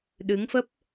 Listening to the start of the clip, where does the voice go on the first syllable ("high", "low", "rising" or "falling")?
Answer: rising